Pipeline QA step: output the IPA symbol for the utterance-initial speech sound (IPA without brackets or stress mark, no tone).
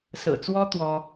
s